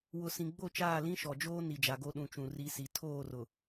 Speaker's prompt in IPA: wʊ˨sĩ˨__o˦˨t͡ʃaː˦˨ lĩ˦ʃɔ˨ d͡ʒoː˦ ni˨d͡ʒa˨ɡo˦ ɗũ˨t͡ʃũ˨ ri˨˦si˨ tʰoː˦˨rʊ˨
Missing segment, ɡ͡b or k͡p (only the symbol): ɡ͡b